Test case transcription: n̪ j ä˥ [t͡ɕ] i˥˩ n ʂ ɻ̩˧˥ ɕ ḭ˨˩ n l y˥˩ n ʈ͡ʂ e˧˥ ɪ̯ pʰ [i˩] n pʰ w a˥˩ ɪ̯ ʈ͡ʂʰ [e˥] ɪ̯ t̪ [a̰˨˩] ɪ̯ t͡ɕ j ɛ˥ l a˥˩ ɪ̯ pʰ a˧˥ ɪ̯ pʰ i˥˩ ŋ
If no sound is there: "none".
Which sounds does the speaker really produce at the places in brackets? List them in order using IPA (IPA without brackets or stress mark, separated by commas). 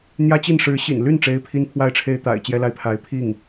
t͡ɕ, i˥, e˥, a̰˨˩